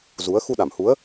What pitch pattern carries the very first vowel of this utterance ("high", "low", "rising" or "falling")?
rising